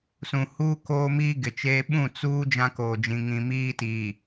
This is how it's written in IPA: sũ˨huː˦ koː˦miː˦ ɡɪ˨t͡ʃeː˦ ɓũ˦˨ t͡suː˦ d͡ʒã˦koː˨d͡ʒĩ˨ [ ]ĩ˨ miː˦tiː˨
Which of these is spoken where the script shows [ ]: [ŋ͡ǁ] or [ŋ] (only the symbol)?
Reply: ŋ